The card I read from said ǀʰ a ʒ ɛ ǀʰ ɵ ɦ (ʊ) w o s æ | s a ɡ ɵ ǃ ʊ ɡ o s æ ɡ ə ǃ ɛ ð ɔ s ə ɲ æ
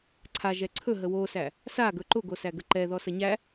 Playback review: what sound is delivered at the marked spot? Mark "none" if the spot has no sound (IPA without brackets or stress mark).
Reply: ə